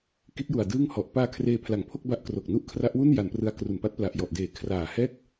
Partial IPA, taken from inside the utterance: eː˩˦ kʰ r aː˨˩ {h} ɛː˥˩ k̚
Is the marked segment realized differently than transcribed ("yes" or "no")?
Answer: no